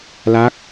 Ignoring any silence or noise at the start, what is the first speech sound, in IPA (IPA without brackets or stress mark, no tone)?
l